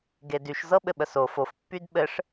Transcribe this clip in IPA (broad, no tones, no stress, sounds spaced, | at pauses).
ɡ e d y ʃ z ɤ ɓ ɘ ɓ ə s o f o f pː y d ɓ ɘ ʂ